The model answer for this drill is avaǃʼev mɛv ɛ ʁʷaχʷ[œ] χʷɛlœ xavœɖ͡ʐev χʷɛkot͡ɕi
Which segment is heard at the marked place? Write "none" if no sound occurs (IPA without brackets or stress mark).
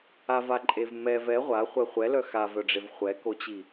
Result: ɛ